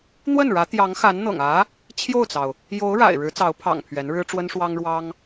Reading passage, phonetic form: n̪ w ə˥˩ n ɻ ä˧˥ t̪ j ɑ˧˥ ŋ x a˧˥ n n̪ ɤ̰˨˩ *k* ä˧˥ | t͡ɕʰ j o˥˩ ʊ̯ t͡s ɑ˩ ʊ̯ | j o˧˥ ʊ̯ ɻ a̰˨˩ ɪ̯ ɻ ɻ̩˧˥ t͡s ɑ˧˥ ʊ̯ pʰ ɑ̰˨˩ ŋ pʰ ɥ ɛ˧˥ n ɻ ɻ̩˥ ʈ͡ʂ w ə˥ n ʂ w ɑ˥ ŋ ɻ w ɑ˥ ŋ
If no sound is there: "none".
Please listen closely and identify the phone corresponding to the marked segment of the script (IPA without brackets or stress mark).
ŋ